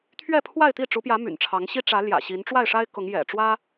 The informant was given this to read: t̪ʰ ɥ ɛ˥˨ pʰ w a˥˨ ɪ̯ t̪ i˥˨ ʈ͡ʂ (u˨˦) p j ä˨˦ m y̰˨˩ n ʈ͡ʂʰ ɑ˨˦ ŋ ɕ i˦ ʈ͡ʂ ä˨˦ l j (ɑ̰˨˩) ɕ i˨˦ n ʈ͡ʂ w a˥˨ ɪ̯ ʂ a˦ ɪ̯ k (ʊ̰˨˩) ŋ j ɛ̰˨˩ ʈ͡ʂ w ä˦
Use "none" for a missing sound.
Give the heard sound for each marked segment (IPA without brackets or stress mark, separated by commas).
u˨˦, ä̰˨˩, ʊ˨˦